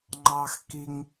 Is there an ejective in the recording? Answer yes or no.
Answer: no